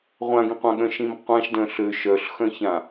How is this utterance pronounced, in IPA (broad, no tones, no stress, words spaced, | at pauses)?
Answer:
ʁʷãɡĩqʷãɠœ̃ ʃĩmqʷãʃdœ̃ ɬø ʃœɬ xœ̃çã